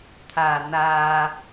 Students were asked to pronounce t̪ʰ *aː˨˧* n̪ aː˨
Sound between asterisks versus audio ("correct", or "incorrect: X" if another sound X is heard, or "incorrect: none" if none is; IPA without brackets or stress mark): incorrect: aː˨˩